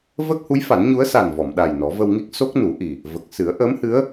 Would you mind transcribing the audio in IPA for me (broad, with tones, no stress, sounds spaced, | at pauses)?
v əː˦˥ k̚ h u˧˥ j f a˨˩˦ n ɲ u˧˥ ə̯ s a˨˩ n v ɔ˨˩˨ m ɗ a˨˩ j n ɔ˨˩˦ v ə˧ w ŋ i˦˥ k̚ s o˦˥ k̚ n u˨˩˦ ʔ i˨˩ | v ə˨˩ k̚ s ɨ˨˩˦ ə̯ ʔ əː˧˥ m h ɨ˧˥ ə̯